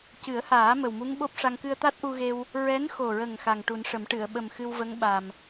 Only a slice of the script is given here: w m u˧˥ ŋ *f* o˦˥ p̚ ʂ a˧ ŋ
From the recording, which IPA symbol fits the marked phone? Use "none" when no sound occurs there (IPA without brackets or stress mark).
ɓ